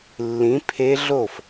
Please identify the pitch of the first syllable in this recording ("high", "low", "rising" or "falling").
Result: rising